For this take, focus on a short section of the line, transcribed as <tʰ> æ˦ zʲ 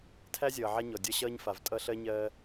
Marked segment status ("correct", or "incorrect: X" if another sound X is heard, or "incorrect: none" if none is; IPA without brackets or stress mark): correct